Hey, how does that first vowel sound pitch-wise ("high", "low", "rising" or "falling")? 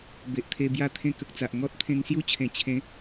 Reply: low